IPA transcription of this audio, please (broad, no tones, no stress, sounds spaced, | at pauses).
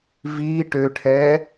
v i ʈ ø ʈʰ ɛ